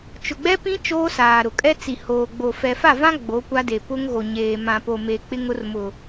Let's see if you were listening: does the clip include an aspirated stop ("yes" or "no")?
no